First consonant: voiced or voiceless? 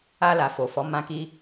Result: voiced